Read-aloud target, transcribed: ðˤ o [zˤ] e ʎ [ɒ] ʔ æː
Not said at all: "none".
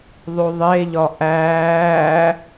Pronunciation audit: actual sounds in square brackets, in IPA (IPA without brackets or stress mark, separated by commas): ðˤ, ɒ